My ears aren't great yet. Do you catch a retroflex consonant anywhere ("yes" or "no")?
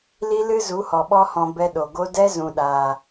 no